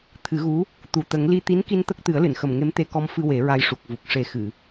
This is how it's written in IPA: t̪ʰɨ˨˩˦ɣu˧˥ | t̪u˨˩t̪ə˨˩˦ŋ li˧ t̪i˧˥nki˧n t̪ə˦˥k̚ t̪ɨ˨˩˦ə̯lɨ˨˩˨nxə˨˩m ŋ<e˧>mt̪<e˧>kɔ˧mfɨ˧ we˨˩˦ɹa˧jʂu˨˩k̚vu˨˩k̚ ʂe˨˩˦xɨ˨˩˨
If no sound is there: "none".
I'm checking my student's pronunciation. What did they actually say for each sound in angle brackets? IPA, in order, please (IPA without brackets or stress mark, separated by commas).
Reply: e˧˥, e˧